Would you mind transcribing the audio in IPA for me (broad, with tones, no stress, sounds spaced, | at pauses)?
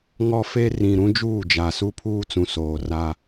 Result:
ŋ ɔ˦ f e˦ r ĩ˨ ɾ ũ˦ d͡ʒ uː˦˨ d͡ʒ a˨ s u˦ pʰ uː˦ t͡s ũ˨ s oː˨ r a˦